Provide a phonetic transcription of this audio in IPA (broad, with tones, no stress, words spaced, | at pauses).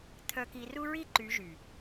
t̪ʰœ˨ki˨ru˦ɹi˦ ǃy˨˦ʒy˨